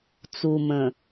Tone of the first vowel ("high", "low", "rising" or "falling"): low